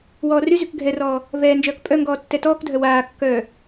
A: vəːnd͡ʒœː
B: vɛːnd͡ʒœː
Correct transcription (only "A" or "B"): B